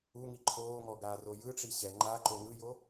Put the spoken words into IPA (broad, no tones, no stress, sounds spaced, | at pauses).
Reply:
u ŋ i ǃʰ oː ŋ ɔ ɡ aː r o j ɯ ʈ͡ʂ i ɕ ɛ ŋ͡ǃ a ǃ o ŋ ɯ j o